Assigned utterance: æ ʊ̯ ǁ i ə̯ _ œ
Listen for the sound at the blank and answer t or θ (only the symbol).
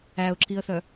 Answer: θ